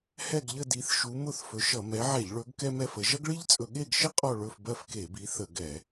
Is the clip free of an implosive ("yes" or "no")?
no